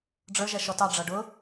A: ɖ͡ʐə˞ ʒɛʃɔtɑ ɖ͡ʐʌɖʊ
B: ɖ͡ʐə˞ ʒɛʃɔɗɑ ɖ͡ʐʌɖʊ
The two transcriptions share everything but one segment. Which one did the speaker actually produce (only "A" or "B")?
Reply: A